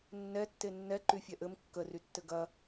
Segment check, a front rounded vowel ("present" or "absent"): present